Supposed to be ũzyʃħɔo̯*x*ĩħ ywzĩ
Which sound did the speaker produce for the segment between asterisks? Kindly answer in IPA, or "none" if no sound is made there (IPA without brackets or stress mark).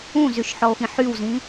x